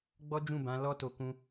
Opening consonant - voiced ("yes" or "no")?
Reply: yes